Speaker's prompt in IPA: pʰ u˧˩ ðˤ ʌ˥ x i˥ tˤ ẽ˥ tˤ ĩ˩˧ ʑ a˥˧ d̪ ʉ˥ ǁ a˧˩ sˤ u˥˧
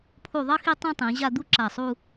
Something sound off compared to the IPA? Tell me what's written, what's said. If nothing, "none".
ʉ˥ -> u˥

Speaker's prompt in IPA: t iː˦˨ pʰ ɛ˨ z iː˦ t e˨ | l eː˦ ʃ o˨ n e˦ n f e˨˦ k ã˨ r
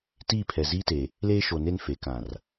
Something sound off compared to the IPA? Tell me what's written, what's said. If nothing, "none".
none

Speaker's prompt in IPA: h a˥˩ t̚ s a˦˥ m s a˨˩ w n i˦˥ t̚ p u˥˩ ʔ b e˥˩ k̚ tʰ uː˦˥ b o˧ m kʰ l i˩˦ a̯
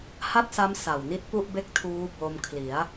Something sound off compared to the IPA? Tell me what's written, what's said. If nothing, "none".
none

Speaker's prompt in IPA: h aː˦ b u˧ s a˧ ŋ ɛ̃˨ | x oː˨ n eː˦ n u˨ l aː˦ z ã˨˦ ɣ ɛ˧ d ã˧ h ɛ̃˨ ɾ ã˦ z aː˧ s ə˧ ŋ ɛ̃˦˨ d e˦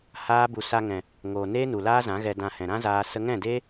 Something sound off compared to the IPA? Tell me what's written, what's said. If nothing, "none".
x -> ŋ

